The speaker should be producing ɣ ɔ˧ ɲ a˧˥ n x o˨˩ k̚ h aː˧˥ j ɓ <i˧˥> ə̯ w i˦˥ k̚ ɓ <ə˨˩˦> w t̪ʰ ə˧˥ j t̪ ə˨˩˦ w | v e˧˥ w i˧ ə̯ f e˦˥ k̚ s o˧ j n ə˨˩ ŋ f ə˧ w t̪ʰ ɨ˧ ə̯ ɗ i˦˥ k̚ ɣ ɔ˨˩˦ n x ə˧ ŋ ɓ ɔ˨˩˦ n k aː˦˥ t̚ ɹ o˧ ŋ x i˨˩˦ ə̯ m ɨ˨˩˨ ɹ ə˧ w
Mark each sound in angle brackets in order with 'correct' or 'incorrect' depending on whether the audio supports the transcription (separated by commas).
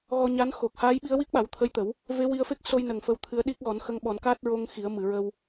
correct, incorrect